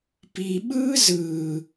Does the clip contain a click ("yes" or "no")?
no